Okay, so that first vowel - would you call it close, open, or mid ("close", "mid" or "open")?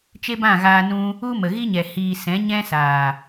mid